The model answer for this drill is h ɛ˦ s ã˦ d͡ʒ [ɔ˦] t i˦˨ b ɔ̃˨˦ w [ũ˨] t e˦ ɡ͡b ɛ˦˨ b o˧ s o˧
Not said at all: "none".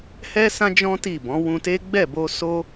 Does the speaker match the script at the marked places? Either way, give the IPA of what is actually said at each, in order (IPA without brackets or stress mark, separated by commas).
ɔ̃˦, ũ˧